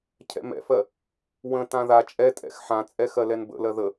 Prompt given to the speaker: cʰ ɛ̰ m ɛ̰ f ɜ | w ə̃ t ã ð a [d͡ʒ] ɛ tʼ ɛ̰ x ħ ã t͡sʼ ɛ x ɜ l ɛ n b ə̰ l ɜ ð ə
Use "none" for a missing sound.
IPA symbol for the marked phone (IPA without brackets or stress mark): t͡ʃʼ